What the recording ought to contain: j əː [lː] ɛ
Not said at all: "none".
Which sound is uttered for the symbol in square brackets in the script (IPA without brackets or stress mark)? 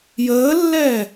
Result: lː